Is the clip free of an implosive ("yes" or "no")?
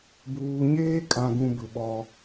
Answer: no